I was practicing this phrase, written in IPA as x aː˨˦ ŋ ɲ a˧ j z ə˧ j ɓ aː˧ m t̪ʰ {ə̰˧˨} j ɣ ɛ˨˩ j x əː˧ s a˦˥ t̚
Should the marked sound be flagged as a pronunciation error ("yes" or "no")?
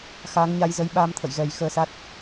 no